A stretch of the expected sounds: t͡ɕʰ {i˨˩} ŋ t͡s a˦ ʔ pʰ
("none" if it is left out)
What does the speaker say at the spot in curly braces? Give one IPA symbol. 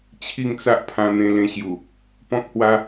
i˥˧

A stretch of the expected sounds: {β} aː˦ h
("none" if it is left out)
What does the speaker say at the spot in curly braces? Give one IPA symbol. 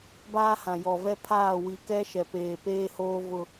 b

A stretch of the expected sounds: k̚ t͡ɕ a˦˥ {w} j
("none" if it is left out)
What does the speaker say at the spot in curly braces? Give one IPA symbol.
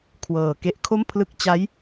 none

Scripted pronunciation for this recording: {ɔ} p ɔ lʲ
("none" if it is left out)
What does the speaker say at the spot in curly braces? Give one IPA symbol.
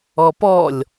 ɔ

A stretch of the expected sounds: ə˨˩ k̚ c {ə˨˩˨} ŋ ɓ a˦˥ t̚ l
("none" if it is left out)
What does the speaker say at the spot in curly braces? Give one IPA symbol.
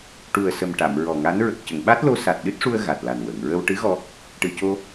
ə˨˩˨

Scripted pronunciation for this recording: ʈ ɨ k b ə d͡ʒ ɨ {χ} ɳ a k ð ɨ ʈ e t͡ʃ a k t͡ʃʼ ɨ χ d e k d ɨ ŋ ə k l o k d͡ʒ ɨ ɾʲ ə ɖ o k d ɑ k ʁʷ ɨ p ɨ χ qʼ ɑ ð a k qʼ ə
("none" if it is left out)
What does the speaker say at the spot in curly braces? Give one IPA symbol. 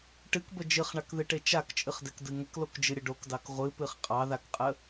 χ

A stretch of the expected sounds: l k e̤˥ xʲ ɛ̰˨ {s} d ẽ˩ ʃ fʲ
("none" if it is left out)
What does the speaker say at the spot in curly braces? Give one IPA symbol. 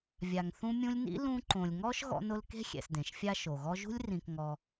s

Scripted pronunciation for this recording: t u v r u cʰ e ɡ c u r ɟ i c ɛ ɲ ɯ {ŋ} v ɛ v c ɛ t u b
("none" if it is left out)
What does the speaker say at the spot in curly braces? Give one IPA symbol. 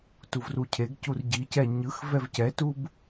x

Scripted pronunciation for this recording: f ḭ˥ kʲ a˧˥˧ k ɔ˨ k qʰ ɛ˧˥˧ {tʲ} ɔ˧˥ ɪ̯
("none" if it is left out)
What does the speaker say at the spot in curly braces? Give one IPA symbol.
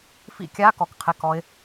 k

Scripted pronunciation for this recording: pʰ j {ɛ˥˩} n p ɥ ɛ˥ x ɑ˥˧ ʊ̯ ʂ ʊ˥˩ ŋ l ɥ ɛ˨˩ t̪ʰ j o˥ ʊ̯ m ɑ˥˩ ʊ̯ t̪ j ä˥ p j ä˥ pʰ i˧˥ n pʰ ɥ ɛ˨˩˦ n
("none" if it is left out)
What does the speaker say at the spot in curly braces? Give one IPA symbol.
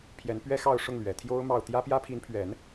ɛ˧˥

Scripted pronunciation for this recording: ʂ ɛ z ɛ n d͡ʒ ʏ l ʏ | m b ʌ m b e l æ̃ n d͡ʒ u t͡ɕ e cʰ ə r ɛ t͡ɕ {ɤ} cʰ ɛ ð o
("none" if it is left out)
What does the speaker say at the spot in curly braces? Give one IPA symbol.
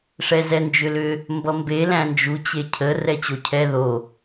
o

